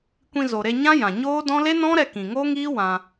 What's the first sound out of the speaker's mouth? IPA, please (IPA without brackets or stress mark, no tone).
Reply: kʷ